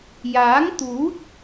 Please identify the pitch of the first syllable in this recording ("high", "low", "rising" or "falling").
rising